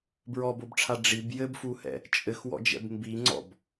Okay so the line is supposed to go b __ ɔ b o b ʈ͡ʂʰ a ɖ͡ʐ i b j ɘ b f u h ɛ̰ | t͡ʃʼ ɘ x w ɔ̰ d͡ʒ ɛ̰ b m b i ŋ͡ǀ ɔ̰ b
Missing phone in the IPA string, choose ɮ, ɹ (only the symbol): ɹ